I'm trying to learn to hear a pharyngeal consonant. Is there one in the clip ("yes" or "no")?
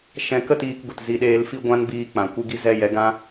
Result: no